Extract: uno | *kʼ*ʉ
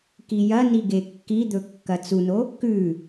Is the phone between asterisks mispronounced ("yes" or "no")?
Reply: yes